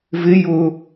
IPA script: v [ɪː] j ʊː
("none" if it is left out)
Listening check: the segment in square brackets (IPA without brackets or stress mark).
ɪ